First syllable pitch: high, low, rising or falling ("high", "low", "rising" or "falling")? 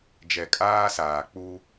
low